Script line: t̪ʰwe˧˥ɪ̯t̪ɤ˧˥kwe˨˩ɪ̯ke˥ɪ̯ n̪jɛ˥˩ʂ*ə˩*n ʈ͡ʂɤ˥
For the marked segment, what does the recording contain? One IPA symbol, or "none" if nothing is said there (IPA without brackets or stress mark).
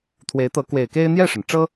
ə˩